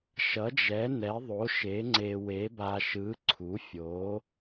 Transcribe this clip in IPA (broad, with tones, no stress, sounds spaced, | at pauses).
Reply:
ʃ ʌ˨˥ d͡ʒ ɛ˨˥ n ɛ˨˥ ðˤ o˨˥ ʃ e˨˥ ŋ͡ǀ e˧ w e˨˥ b a˧ ʃ ɯ˨˥ ǀʰ u˨˥ fʲ o˨˥